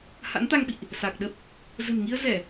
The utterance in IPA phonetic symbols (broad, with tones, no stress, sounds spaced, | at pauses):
h a̰˧˥ n t̪ a˧ ŋ ɓ ḭ˧˨ ʔ | s aː˨˩ k̚ ɗ ə˦˥ p̚ | z ə̤˨˩ n ŋ i˧ ə̯ z ɛ˧˩˨